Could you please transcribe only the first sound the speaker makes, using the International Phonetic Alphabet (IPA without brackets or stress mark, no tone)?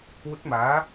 w